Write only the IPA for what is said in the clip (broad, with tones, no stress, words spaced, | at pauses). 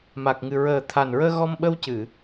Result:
ma˨˩k̚ŋɨ˨˩ ɹəː˨˩t̪ʰa˨˩nɹəː˧ ɣɔ˧mɓə˧wcɨ˨˩˨